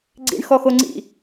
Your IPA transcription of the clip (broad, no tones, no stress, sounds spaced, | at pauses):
ɡ͡ǀ ḭ ɳ x ɔ x o ŋ͡ǀ ḭ